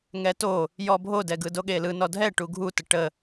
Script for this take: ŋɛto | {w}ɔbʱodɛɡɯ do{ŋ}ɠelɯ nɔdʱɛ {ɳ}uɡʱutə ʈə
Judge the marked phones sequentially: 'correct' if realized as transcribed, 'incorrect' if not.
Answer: incorrect, incorrect, incorrect

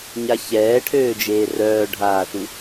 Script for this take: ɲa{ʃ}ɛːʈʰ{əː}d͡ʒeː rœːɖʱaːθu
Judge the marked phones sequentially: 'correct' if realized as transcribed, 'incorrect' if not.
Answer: incorrect, incorrect

